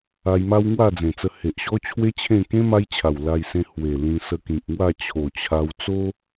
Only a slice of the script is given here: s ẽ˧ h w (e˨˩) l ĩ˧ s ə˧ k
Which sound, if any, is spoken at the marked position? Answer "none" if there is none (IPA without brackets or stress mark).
e˨˩